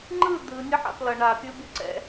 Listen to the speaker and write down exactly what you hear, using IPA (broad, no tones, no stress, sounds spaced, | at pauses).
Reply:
ŋ͡ǃ ɯ d̪ ɯ nʲ ʌ ħ a̰ p l ʌ ɳ a pʲ ɯ bʲ ʌ ǀ ɛ̰